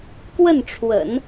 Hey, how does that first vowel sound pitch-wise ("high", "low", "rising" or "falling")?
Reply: falling